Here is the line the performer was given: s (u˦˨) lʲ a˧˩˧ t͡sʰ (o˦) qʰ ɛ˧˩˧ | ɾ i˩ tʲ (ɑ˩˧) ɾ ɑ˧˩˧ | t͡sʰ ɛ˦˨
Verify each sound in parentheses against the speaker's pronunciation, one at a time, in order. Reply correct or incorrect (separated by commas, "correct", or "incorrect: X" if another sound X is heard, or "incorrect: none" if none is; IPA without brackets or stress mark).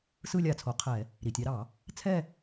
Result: incorrect: ɯ˦˨, incorrect: o˩˧, correct